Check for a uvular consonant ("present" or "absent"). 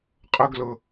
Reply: present